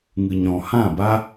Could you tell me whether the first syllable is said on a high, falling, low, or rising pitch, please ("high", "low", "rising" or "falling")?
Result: low